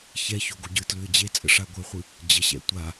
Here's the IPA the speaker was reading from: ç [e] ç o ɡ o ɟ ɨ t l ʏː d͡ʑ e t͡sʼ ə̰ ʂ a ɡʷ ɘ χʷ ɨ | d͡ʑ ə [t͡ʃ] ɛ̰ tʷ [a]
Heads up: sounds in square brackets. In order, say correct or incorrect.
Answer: incorrect: ɛ, incorrect: ɕ, correct

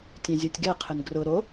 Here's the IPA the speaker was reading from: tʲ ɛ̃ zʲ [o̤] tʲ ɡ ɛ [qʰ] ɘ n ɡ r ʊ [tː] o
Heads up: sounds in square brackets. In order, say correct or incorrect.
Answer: incorrect: o, correct, incorrect: ɾ

